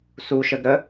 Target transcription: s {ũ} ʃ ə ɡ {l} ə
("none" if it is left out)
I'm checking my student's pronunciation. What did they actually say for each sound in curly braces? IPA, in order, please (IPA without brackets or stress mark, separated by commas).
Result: u, ɾ